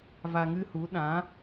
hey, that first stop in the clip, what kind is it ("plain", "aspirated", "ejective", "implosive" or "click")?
implosive